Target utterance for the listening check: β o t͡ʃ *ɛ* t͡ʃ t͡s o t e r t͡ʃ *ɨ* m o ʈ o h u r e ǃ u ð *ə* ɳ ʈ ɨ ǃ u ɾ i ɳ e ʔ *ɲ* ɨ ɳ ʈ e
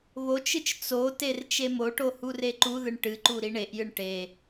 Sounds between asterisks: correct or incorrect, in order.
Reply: incorrect, incorrect, incorrect, incorrect

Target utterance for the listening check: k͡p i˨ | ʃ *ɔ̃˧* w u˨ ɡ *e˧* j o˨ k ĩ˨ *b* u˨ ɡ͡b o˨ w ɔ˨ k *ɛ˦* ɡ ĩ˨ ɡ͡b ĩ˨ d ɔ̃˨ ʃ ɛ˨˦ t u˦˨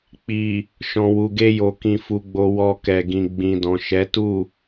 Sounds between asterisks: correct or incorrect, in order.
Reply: incorrect, correct, incorrect, incorrect

